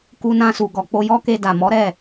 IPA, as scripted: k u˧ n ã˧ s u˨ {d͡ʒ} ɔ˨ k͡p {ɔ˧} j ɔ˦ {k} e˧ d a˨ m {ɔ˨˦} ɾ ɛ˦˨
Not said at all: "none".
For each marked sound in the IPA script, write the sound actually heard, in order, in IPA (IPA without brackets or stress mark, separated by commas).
ɡ, o˧, k, ɔ˨˦